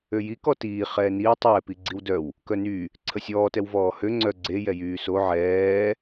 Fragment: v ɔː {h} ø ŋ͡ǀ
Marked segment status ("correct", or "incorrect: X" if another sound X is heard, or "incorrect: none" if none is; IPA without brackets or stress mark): correct